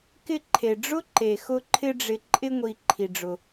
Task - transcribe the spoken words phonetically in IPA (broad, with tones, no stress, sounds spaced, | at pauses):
k ɪ˧ ǃʰ e˩ ɖ͡ʐ ʊ˥ ǃ e˩ x ʊ˧ ǃʰ ɪ˧ ɖ͡ʐ ɪ˩ ǃʼ ɪ˧ ŋʷ i˩ ǃʰ i˩ ɖ͡ʐ ʊ˩